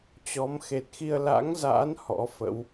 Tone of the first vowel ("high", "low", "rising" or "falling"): rising